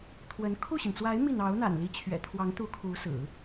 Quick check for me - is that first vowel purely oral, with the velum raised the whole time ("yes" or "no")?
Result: yes